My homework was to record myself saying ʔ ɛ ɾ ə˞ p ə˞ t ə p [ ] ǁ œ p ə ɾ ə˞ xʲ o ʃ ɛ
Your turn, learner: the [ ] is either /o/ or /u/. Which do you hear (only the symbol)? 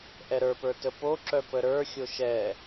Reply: o